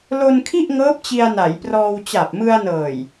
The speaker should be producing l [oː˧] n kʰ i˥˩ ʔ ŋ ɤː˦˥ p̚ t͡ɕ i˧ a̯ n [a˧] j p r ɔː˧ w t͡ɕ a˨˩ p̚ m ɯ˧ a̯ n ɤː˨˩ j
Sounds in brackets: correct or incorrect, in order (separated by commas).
incorrect, incorrect